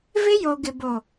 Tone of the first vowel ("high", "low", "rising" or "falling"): high